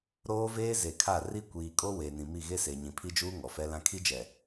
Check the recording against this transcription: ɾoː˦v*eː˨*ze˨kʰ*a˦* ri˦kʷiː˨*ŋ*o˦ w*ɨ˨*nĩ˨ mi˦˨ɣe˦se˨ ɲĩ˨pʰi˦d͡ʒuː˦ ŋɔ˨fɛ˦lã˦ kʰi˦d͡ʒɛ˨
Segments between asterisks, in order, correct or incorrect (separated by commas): incorrect, incorrect, incorrect, incorrect